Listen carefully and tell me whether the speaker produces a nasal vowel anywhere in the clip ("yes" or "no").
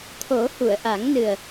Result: no